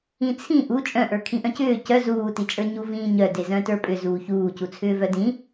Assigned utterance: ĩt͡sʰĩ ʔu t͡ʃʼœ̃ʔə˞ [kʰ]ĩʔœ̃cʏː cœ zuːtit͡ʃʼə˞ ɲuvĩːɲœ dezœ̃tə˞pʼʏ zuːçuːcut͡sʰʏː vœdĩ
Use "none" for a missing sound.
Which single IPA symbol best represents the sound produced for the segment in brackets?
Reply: kʰ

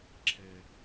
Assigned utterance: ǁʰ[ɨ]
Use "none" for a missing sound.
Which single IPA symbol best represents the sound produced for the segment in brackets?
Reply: ɛ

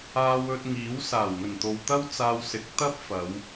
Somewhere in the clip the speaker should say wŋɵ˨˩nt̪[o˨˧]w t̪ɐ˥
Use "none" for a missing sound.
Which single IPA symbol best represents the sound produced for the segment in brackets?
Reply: o˨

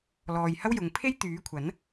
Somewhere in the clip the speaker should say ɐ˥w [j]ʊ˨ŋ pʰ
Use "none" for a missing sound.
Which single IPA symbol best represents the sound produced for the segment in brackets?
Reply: j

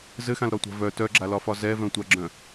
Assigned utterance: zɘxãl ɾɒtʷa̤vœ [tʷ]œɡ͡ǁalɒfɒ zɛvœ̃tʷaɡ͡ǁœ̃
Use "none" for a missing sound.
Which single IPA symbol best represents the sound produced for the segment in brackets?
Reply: t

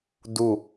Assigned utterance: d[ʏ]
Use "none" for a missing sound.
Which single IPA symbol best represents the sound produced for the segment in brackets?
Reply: u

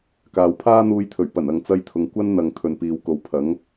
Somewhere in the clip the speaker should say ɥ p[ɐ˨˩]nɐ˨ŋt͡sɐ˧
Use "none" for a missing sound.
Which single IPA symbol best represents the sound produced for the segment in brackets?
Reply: ɐ˨˩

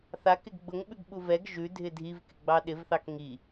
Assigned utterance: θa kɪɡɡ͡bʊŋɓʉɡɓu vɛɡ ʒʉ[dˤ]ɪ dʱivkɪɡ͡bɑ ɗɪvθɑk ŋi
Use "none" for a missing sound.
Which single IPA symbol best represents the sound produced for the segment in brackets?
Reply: dʱ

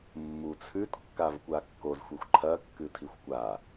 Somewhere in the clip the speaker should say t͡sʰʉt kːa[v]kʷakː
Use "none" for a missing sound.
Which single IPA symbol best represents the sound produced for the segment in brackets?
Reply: v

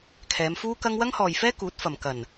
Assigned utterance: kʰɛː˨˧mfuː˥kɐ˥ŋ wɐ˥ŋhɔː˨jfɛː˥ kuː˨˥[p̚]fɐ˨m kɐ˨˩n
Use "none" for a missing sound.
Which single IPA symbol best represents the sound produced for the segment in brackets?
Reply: t̚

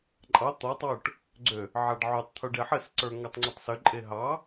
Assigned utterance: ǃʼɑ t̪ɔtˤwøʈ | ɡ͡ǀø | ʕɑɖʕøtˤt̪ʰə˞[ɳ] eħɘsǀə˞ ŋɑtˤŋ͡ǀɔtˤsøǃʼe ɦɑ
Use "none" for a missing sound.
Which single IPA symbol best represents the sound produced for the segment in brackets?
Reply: ɖ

